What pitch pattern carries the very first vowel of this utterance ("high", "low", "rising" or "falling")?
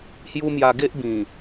high